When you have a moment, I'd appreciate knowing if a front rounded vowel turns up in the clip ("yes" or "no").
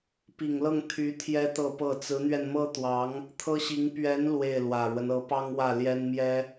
yes